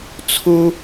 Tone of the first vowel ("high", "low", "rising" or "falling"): high